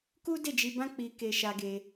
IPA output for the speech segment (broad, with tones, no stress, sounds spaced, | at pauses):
k u˦ d e˦˨ d͡ʒ i˧ b ã˦ k͡p i˧ k e˧ ʃ a˧ ɡ e˧